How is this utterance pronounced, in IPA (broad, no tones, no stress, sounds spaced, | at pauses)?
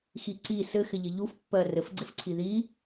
x i ǀ i s ɘ x ɪ ʎ ɪ ʎ u f pː ɜ r ɘ f ɡ͡ǀ ɪ f ǀʰ i ð i